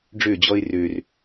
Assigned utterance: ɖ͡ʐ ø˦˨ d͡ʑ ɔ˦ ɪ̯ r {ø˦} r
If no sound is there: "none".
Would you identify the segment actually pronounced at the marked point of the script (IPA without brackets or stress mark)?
ø˦